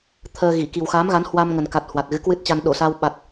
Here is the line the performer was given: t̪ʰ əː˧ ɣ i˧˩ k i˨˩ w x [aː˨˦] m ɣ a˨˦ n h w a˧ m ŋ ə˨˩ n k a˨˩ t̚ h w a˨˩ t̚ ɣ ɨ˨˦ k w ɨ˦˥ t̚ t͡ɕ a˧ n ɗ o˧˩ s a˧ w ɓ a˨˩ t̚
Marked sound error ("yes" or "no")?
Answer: no